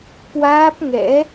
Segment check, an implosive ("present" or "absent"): absent